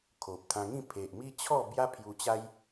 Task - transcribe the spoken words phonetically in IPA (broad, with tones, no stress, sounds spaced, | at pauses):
kʰ o˨ p̚ t̪ʰ ã˧ ŋ ĩ˥˧ pʰ e˨ ʔ m i˦ t͡ɕʰ ɔ˥˧ b j a˦ pʰ j u˧ t͡ɕ a˦ j